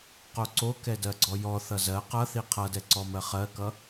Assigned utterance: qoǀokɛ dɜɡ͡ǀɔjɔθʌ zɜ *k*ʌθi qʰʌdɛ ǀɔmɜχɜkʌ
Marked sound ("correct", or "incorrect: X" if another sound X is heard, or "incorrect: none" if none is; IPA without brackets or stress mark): incorrect: q